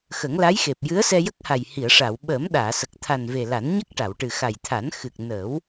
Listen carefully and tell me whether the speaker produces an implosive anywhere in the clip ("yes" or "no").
yes